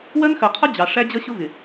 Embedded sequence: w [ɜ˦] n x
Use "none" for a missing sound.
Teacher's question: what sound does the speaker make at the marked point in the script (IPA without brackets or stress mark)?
ɜ˦